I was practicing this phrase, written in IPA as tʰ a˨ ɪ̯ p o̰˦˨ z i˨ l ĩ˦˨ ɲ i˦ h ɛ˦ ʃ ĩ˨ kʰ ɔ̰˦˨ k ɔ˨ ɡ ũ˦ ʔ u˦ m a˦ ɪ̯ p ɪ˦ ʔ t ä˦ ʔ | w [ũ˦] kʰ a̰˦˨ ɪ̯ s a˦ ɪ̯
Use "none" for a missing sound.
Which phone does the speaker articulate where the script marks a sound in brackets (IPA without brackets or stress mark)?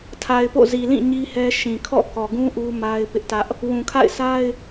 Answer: ũ˨